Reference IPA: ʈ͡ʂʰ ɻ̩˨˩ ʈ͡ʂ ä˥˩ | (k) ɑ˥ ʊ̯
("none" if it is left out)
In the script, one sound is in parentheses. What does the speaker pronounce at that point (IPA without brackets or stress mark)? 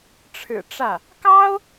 k